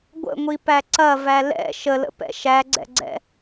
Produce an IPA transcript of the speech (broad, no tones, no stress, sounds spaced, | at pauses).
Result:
ɡʷ ə̰ ŋʷ i p æ ǀ ɐ v æ l ɛ̰ ʃ ə l ə̰ p ɛ̰ ʃ æ ɡ͡ǀ ɛ̰ ɡ͡ǀ ɛ̰